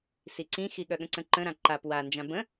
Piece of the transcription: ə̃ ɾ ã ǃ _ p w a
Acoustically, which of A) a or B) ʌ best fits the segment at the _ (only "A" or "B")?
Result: A